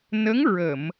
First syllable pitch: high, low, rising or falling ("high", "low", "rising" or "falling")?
rising